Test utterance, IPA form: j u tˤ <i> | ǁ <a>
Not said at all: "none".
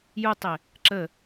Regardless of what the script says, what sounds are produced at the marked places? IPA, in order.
ɪ, ə

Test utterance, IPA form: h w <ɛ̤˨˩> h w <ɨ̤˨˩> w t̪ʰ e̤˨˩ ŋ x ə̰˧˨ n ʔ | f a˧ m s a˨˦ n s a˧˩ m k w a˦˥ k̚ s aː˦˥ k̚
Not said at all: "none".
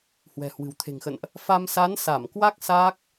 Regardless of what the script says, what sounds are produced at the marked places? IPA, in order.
ɛ̤˨˩, ɨ̤˨˩

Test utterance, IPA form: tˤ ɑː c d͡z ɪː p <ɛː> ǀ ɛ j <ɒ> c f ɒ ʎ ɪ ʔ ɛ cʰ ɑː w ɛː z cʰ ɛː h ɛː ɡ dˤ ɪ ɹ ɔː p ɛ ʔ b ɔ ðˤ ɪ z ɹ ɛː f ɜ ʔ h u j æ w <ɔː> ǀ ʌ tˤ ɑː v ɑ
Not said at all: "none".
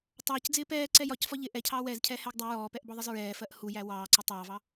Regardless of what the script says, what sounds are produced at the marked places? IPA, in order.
ɛː, ɒ, ɑː

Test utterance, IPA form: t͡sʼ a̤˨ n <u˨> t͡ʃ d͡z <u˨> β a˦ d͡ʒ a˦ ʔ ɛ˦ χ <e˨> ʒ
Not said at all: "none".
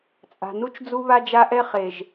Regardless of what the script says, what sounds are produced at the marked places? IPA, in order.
u˦, u˦, e˨

